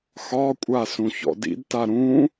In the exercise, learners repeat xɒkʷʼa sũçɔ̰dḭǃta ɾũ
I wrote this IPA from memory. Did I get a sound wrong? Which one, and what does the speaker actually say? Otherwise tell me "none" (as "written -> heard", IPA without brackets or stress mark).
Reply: ǃ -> d